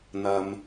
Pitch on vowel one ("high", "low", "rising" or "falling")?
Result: low